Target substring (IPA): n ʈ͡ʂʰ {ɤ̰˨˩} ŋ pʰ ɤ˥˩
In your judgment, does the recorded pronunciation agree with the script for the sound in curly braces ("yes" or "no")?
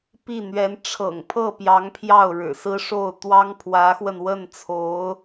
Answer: yes